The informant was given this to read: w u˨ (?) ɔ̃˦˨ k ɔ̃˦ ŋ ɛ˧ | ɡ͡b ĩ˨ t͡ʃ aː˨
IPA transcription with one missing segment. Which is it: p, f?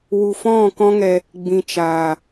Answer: f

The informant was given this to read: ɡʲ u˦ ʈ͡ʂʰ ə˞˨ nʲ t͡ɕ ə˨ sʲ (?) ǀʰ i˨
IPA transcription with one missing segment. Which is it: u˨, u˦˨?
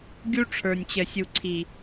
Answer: u˨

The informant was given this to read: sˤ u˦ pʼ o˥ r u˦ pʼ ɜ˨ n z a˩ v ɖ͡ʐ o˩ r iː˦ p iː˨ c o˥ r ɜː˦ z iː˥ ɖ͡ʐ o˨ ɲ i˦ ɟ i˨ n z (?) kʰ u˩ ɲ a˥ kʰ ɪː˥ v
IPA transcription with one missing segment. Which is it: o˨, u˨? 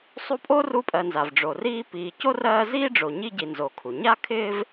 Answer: o˨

